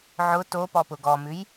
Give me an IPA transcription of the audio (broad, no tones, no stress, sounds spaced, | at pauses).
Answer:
ʕ ʊ t o p ɔ p ʊ ɡ ɔ m ʉ j